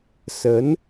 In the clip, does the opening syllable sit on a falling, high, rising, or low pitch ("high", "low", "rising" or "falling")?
rising